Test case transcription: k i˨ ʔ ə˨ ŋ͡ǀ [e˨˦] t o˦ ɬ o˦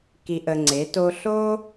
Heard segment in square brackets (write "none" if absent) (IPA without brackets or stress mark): e˨˦